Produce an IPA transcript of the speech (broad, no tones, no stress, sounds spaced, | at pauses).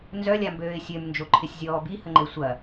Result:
n z œ lʲ a m b øː ɪ̯ sʲ ø m n d͡ʒ o ǃʰ ɪ sʲ zʲ ɔː b i h ə ŋ͡ǃ e sʷ ɐ